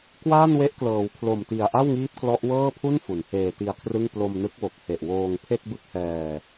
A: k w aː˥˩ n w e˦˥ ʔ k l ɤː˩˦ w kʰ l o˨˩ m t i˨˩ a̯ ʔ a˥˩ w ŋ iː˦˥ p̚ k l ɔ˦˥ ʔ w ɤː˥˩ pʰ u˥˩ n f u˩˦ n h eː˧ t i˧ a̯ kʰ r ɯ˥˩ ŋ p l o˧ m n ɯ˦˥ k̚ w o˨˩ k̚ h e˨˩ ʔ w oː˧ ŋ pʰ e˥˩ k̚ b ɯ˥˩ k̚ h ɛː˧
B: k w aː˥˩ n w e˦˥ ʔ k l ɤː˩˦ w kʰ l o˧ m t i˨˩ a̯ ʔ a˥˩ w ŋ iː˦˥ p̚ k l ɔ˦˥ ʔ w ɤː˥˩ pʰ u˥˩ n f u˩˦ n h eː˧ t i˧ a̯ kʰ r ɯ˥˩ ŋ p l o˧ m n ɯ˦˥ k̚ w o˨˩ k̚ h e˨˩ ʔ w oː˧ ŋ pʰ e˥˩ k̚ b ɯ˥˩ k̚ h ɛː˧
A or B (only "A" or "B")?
A